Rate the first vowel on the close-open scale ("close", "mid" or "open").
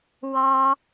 mid